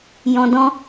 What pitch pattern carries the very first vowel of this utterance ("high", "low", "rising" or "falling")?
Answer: low